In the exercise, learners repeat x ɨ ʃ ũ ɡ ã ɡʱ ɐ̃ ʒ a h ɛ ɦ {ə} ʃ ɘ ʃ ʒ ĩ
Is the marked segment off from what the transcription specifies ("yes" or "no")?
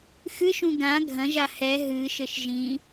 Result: yes